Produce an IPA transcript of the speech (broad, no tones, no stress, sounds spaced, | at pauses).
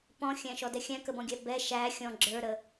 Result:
p ɔ̃ xʲ æ̃ ʃ ɔ d ɛ xʲ æ̃ k ə b ɔ̃ ɡʲ æ b ɛ ʃ æ xʲ ɔ̃ ɡ͡ǁ ə˞ ɾ ə